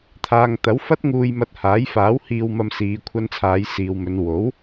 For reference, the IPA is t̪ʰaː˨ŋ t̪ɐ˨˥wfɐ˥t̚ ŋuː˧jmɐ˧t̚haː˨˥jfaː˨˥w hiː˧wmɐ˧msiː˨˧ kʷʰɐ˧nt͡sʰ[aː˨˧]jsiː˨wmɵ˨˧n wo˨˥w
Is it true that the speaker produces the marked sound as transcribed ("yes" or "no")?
yes